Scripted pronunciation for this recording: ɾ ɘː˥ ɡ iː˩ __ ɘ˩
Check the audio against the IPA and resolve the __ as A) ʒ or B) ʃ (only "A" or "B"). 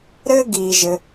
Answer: A